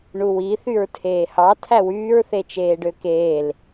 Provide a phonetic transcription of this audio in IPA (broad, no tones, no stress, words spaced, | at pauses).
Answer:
ɳuwi θyɹtʰeːhɑ tʰæwyːɹ θet͡ʃeːɖøkeːl